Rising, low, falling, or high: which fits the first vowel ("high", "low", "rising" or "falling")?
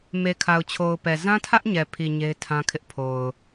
low